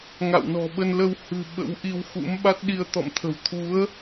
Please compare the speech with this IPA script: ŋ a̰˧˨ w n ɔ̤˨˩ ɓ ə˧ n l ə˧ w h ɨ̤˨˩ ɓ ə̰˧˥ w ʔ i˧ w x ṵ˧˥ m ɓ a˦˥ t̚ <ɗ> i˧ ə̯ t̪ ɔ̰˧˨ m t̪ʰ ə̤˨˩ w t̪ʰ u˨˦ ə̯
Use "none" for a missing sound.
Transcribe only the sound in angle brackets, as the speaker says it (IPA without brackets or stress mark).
ɗ